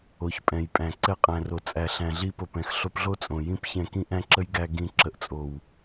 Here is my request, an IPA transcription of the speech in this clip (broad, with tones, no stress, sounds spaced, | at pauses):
o˨ ç pʼ ɛ̃˨ j pʼ æ̃˨ ǀ ɛ˧ qʼ æ̃˨ r o˨ t͡sʼ æ˨ ɬ æ̃˨ ɮ i˧ p o˨ p ɛ̃˨ x ɬ o˧ p ɮ o˦ t͡sʼ õ˨ j ĩ˦ p ç ɛ̃˧ k ĩ˦ ʔ æ̃˦ ǁ ə˦ j ɡ æ˧ ɡ ĩ˧ ǁ ə˨ ʔ t͡sʼ o˨ w